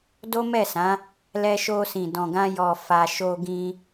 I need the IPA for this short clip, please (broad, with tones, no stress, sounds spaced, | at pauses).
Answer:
d o˦ m ɛ˦˨ s ã˨˦ | l ɛ˧ ʃ o˧ s ĩ˨ d ɔ̃˨ ɡ ã˧ j ɔ˨ f a˨ ʃ o˧ ɡ ĩ˧